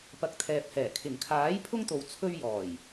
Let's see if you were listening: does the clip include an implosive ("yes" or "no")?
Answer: no